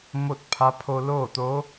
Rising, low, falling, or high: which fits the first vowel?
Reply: falling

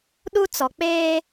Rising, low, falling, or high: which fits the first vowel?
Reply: high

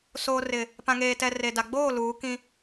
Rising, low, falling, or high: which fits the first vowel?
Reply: low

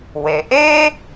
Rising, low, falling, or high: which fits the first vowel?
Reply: low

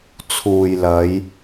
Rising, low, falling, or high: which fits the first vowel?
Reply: low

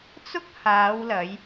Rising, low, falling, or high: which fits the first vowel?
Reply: high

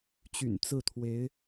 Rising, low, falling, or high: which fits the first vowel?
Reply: low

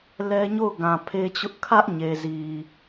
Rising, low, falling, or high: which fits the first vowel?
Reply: high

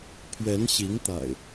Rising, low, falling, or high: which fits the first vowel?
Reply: rising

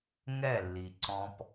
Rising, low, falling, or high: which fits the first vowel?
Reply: falling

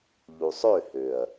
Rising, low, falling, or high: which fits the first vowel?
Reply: low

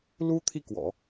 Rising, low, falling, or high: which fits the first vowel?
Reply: high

